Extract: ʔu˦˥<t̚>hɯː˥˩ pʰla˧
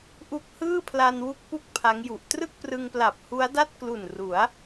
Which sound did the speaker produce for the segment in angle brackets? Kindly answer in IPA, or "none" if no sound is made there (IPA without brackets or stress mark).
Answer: k̚